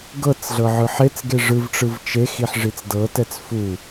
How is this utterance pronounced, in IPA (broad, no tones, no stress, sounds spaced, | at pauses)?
ɡ ɤ t͡s ɮ ɤ ʕ ɯ ħ e t͡s ɡ e ʐ ɯ v ʈ͡ʂ ɯ v t͡ʃ e x i ħ ʐ i t͡s d ɤ t ɛ t͡s f u